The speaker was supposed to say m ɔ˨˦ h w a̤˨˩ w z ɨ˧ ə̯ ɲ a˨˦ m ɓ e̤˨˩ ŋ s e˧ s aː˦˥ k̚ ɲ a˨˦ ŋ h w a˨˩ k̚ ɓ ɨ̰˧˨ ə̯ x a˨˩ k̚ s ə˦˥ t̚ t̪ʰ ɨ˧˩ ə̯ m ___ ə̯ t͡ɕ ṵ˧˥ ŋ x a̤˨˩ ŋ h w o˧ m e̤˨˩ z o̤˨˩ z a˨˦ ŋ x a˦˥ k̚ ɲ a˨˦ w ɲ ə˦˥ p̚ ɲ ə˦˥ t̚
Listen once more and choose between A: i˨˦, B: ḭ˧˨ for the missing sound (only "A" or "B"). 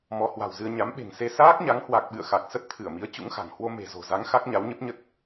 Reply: A